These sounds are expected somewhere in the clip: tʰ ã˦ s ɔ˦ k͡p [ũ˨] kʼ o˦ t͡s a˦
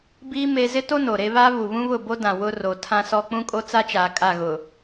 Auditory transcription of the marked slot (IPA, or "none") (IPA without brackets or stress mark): ũ˦